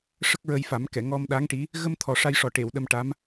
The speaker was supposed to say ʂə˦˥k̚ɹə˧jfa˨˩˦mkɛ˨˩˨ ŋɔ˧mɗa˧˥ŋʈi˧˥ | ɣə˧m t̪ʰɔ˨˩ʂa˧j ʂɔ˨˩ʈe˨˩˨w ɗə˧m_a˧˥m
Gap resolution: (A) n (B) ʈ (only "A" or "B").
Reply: B